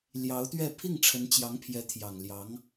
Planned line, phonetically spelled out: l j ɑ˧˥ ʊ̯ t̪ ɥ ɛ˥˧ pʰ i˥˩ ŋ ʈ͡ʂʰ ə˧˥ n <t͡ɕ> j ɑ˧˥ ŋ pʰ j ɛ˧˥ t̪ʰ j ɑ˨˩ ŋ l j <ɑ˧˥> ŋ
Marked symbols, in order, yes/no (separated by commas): yes, yes